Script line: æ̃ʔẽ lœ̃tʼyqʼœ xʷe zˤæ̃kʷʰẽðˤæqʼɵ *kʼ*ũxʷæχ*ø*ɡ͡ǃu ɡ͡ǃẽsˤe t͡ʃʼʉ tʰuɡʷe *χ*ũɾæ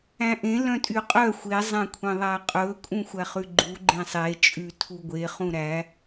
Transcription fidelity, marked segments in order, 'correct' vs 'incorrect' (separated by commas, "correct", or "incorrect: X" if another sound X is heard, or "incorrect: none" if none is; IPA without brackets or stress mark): correct, incorrect: ʉ, correct